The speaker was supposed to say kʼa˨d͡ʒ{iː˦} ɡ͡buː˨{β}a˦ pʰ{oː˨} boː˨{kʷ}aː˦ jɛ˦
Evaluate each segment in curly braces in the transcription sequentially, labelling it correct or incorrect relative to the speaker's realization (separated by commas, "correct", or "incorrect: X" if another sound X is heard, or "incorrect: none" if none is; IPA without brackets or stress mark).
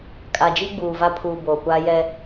incorrect: i˦, incorrect: v, incorrect: uː˨, correct